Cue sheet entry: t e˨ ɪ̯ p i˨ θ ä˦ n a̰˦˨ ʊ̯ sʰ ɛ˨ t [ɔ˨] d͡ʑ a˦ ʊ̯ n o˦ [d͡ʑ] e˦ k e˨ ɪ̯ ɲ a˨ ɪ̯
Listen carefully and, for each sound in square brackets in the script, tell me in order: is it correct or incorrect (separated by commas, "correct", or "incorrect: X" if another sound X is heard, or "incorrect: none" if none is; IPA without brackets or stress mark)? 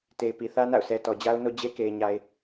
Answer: correct, correct